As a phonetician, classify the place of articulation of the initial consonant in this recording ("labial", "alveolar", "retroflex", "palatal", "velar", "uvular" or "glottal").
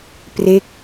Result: labial